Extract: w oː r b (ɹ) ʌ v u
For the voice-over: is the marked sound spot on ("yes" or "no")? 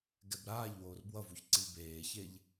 no